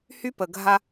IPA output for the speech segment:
h y˦ p ə˨ ɡʱ a˦

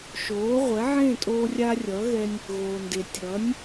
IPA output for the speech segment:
ʃ oː˩˥ ʁʷ ɛ˩˥ ʕ ẽ˥˩ tʼ oː˧ rʲ a˧ rʲ ʌ˩˥ ɣ ɛ˧ nʲ | ɣ oː˩ n d e˩ tʲ ʌː˩˥ nʲ

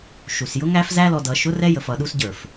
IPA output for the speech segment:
ʃ u˨ s j ʊ˦ ŋ æ˦ f z æ˦ l ɔ˧ d ʌ˧ ʃ ʊ˦ r ɛ˦ j ə˧ f ʌ˧ ɗ u˦ s ɟ ə˞˨ f

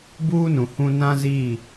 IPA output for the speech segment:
b uː˦ n ũ˨ h ũ˦ n ã˦ z iː˦˨

